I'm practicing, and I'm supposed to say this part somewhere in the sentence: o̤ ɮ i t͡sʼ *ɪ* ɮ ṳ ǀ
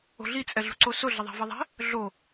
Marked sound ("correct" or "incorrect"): incorrect